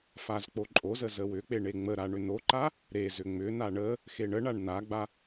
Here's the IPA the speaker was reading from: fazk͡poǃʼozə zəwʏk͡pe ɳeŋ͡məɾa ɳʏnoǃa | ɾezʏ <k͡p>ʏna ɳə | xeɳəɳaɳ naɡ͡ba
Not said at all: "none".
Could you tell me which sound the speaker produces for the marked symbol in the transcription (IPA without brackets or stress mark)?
ŋ͡m